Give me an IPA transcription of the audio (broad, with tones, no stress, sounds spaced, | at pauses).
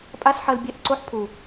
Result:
pʼ a˦ s ħ ɐ˧ l bʲ ɛ˦˨ ʔ ǀ o˦ ħ pʰ u˨